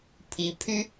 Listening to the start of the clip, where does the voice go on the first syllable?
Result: rising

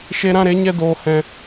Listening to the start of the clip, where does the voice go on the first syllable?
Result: high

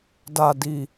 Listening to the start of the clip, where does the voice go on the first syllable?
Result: low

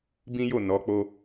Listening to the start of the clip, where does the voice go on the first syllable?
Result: high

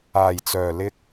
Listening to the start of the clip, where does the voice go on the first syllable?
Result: low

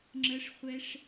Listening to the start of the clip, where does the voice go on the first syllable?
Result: high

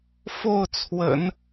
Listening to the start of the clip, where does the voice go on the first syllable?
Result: falling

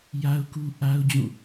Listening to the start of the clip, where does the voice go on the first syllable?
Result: high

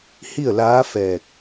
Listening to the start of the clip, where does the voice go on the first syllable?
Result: falling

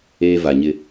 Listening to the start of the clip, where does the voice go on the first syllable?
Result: high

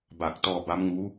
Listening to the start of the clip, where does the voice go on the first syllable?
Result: low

